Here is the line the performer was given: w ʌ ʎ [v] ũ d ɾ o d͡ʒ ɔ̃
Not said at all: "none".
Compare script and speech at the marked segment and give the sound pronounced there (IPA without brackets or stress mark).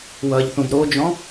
θ